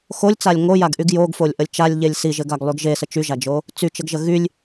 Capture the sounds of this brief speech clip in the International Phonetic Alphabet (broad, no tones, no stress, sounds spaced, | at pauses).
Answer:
x o lʲ t͡s a lʲ ŋ o j a ɡ ʔ y ɡ j o ɡ f o lʲ ʔ ə lʲ t͡ʃ a lʲ ʎ e lʲ s i ʒ ɘ ɡ a ɡ lˠ y ɡ ʒ e s ə t͡ʃ y ʒ a d͡ʒ o | t͡s y t͡ʃ ə ɡ ʒ ə ɣ y lʲ